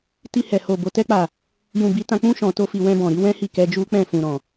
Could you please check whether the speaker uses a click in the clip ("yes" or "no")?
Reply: no